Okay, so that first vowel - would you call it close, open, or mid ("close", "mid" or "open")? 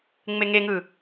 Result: mid